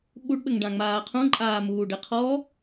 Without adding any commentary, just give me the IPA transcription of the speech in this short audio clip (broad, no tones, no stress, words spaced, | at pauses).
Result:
ɓuɖɓɘŋɖãŋ͡maː qʰũǃʼaːmuːɖɘ qʰɔ